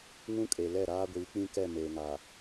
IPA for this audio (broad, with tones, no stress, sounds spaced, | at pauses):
ŋ ũ˦ kʼ e˨ l ɛ˦˨ ɾ aː˦ ɡʷ iː˨˦ k͡p ĩ˦ k ɛ˦˨ m eː˨ ŋ a˨